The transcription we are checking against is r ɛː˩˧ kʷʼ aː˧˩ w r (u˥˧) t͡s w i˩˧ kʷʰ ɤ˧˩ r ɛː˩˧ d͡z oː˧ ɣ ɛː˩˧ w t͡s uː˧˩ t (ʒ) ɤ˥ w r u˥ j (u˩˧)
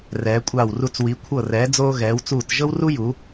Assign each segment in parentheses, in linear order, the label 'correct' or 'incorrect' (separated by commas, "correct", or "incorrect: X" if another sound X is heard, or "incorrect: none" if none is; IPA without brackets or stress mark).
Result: incorrect: u˧, correct, correct